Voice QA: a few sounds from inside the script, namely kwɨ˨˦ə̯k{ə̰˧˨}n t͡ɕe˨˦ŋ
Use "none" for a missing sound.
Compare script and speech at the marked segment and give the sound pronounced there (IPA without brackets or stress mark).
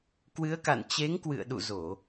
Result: a̰˧˨